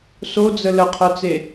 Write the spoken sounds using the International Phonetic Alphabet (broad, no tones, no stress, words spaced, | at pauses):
sod͡zə ləqʰœt͡se